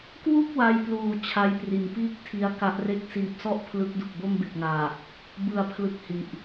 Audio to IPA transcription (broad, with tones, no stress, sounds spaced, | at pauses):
k w u˥˩ k̚ w a˧ j p l uː˨˩ t͡ɕʰ a˦˥ j p r i˨˩ n p iː˥˩ k̚ tʰ i˦˥ a̯ k a˦˥ ʔ r e˥˩ k̚ s iː˨˩ p̚ s ɔ˦˥ ʔ pʰ l ɯ˦˥ k̚ d u˨˩ k̚ b o˥˩ m b e˨˩ k̚ ŋ aː˨˩ | b ɯ˩˦ a̯ pʰ l ɯ˨˩ k̚ h i˨˩ ʔ